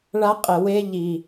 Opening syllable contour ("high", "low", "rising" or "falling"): high